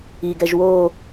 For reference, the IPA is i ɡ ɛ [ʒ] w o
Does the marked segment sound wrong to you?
no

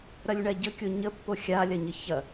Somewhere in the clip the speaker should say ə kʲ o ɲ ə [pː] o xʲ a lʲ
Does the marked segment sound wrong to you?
no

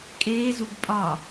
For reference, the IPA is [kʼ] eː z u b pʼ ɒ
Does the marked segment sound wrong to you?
no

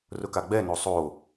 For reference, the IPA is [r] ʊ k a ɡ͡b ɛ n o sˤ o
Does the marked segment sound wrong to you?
no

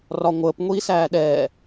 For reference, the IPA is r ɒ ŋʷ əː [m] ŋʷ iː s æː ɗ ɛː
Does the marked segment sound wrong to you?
yes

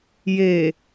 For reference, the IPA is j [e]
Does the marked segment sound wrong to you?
no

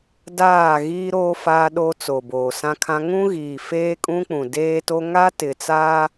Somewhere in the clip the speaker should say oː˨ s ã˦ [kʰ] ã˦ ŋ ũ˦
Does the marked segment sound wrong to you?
no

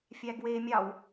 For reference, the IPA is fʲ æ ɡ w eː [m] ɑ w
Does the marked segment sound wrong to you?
yes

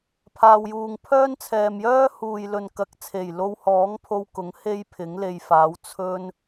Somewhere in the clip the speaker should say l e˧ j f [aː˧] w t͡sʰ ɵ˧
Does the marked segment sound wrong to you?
yes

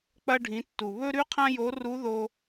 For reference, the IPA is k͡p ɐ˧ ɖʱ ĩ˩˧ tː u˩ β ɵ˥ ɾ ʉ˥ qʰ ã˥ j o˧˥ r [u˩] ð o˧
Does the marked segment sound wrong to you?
yes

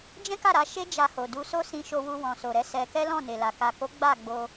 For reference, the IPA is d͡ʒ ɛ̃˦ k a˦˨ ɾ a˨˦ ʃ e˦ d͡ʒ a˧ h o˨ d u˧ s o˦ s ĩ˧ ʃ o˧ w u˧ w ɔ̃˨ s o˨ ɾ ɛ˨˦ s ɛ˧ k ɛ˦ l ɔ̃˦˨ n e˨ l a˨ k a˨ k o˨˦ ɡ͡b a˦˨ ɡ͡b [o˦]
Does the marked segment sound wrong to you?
yes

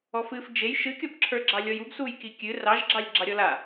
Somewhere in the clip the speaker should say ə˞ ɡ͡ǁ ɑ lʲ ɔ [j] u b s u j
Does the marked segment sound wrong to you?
no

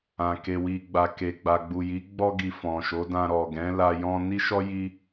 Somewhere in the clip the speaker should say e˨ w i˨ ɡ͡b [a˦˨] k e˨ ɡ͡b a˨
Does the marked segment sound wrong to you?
yes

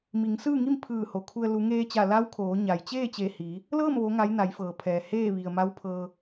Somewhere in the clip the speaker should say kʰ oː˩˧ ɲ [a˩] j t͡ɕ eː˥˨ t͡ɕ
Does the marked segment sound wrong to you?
no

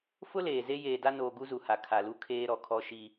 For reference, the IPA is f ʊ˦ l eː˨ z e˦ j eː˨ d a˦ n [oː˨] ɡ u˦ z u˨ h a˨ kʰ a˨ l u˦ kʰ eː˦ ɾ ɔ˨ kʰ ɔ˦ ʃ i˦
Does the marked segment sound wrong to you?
no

